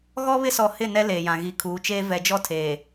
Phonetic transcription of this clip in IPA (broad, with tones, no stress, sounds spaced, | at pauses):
ɣ ɔ˦ β ɪ˦ s ɔ˨ h ɪ˦˨ n ɛ˦ l eː˨ j ã˨ ɣ i˨ kʰ uː˨˦ t͡ʃ eː˦ v ɛ˨ d͡ʒ ɔ˦ tʰ eː˨